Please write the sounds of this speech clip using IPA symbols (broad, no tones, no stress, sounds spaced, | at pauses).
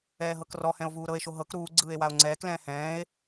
ɛː ɦ ɤ k r ɔ h ɛ̃ o̯ v uː ɾ ɤ e̯ ʃ o ɦ ɤ k ɾ uː ɡ͡ǀ ɯː e̯ w a o̯ ŋ͡ǀ ɛː k l ɛ̃ː h ɛ̃ː e̯